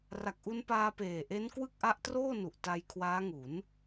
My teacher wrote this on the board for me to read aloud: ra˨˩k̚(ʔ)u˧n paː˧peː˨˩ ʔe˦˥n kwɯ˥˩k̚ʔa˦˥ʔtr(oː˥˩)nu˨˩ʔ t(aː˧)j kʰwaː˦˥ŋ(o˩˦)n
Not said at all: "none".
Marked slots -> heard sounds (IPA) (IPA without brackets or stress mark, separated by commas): ʔ, oː˥˩, a˧, u˩˦